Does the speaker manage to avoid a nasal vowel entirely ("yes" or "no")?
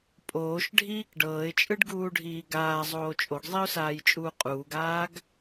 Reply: yes